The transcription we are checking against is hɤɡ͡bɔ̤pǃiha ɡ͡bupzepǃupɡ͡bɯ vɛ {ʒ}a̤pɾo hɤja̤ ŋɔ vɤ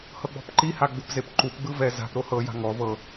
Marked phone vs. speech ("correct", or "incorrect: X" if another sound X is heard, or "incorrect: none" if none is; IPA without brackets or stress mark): incorrect: z